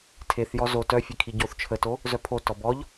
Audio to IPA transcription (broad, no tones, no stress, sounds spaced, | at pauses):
tʰ e θ j ɔ z o t œ fʲ e kʰ i ɟ o θ t͡ʃʰ ə t o | z œ pʰ o t ɔ b ɔ ʎ